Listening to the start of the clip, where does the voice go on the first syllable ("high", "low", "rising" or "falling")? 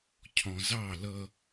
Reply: low